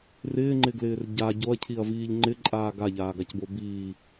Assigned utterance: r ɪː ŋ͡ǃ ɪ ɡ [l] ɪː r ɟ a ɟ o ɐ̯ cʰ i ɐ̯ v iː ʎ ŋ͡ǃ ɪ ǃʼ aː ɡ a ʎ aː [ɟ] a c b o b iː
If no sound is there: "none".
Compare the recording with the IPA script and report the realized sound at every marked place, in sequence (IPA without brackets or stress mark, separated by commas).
l, ɡ